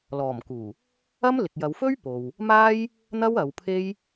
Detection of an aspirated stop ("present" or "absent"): present